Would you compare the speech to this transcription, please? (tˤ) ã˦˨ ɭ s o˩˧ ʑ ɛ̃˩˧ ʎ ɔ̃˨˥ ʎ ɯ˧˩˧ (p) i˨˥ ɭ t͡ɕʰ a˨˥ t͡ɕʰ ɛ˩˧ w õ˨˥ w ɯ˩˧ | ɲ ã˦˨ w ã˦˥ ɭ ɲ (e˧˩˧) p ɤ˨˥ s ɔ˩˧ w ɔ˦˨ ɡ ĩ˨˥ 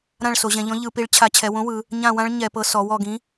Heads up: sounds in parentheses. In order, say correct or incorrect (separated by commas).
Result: incorrect, correct, incorrect